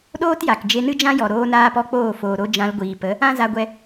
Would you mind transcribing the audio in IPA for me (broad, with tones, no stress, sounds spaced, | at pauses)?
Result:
ɗ oː˦ t j a˨ k d͡ʒ e˧ n ɨ˦ d͡ʒ ã˦ j ɔ˨ ɾ oː˧ n aː˦ p ɔ˦ k͡p oː˦˨ f oː˨ ɾ o˧ d͡ʒ ã˧ l ɡʷ iː˨ p ə˨˦ | ã˦ z a˧ ɡʷ ɛ˧